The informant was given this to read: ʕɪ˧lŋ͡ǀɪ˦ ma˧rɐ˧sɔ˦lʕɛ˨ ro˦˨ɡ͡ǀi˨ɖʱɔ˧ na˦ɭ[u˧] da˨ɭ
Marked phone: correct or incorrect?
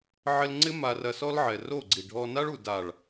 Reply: incorrect